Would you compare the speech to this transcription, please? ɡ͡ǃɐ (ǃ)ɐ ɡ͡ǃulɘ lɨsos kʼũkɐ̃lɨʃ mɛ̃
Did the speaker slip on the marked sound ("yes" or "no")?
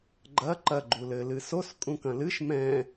no